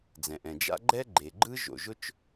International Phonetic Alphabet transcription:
d͡z ɛ̃˩ ʔ ɛ̃˩ d͡ʒ a̰˥ ɡ͡ǃ ɛ˥ ɡ͡ǃ e˩ ɡ͡ǃ ɯ˥ ʒ o̰˩ ʒ ʊ˥ t͡ʃ

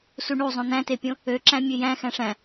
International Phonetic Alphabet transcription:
s u ɳ u zˤ õ n̪ æ̃ t e pʲ õ | ø ǁ æ̃ mʲ ø j æ̃ x æ̃ ʂ æ̃

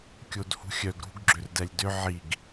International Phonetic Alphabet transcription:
kʲ o d h ṳ xʲ œ ɡ ɾ ṳ ɡ ɡ͡ǁ ʏ r d ɛ lʲ d ʏ ʕ i ɡ

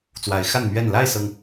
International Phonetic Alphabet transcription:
t͡s w a˨˦ ɪ̯ x a˥˨ n m ɥ ɛ˥˨ n l a˥˨ ɪ̯ s ɤ˩ ŋ

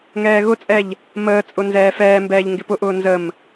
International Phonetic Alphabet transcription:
ŋ ɛː ɣ ʊ t͡sʼ ɛ ʎ | m əː t͡sʼ ʊ n z ɛː f ɛː m b ɛː ʎ ŋ ɡ ɪ p ʊ ʔ ʊː n z ə m

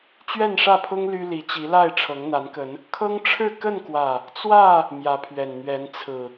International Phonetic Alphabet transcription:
t͡ɕ ɥ ɛ˥˨ n ʂ ä˥˨ pʰ ʊ˦ ŋ l y˦ l i˨˦ t͡ɕ i˨˦ l a˥˨ ɪ̯ ʈ͡ʂʰ ɤ˨˦ ŋ n̪ a˨˦ n k ə˨˦ n | kʰ ɤ˦ ŋ ʈ͡ʂʰ ɻ̩˥˨ k ə˥˨ n k w ä˨˩ | t͡s w ä˥˨ | m j ä˨˦ pʰ ɥ ɛ˨˩ n n̪ ɥ ɛ˨˦ n t͡sʰ ɹ̩˨˩

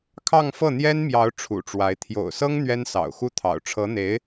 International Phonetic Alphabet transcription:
kʰ ɑ˥˧ ŋ f ɤ˥˩ n̪ j ɛ˥ n m j ɑ˧˥ ʊ̯ ʈ͡ʂʰ ṵ˨˩ ʈ͡ʂ w a˧˥ ɪ̯ t̪ʰ j o̰˨˩ ʊ̯ s ɤ˥ ŋ n̪ ɥ ɛ˥ n s ɑ̰˨˩ ʊ̯ x u˥ t̪ʰ ɑ̰˨˩ ʊ̯ ʈ͡ʂʰ ɤ˧˥ n̪ e˧˥ ɪ̯

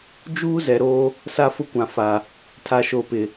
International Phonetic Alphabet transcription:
d͡ʒ uː˦ z ɛ˨ ɾ oː˦ | s a˦ f ʊ˦ kʷ ã˨ f aː˨ | tʰ a˨ ʃ o˨ p ɪ˨

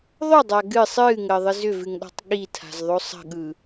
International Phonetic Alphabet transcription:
ðˤ ʏ dˤ a ɡ ɨ sˤ ɨː ŋ əː ðˤ ɨ z ʏ v ɨ ŋ ɗ ɔ̤ tˤ ɠ i tʰ a̤ z ðˤ o sˤ ə̤ ɠ ɯ

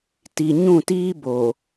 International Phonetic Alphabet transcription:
t i˨ ɲ ũ˦˨ t iː˦ b o˨

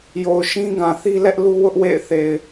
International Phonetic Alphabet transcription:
j o˨ ʊ̯ ʃ ĩ˦ ɡ ã˨ θ i˦ l ɛ˦ ʔ l u˦ w ʊ˦ ʔ w ḛ˦˨ ɪ̯ θ e˨ ɪ̯

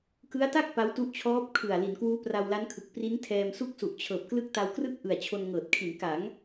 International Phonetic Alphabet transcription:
k ɯ˦˥ a̯ t a˥˩ k̚ p a˦˥ w t u˦˥ ʔ t͡ɕʰ ɔː˦˥ p̚ kʰ ɯ˨˩ a̯ l i˩˦ n k w uː˦˥ p r a˧ w l a˦˥ n kʰ ɯ˨˩ k̚ p r i˦˥ n tʰ ɛː˧ m s u˥˩ k̚ s u˨˩ ʔ t͡ɕʰ ɤː˨˩ p̚ k l ɯ˦˥ k̚ t a˧ w k r ɯ˥˩ k̚ ʔ ɯ˨˩ a̯ t͡ɕʰ o˧ n ŋ ɤː˨˩ t̚ kʰ i˩˦ n k a˩˦ ŋ

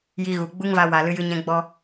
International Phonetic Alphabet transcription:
j i˧ ɣ u˨ ɡ͡b u˦ ŋ v a˧ w a˨ l ɨ˧ j ɨ˧ ɲ ɛ̃˧ ɡ͡b ɔ˦

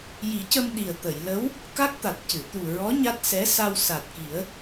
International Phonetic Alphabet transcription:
j i˨˩˦ c ə˧ m ɗ i˨˩ ə̯ t̪ ə˨˩˨ j l ə˧˥ w | k a˦˥ k̚ t̪ a˨˩ t̚ c ɨ˨˩˨ t̪ u˨˩ ɹ ɔ˧˥ ɲ a˦˥ t̚ s ɛ˧˥ s a˧ w s a˨˩ t̚ k i˨˩˦ ə̯

